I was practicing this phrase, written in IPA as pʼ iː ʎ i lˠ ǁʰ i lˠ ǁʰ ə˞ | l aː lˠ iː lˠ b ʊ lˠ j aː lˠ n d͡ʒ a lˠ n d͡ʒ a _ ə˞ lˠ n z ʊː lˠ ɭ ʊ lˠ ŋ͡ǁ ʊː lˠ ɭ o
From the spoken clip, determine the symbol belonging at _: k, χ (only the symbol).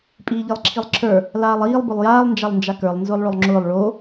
k